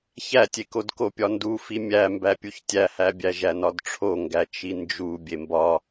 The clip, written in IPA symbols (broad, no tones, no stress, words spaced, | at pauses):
çætʲekod kopʲɒndufi mʲæmbæ pʲuçtʲæhæbʲæ ʒænɒdʈ͡ʂʰoŋɡæ t͡ʃind͡ʒu bʲembɒ